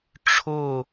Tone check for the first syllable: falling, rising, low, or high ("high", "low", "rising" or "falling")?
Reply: falling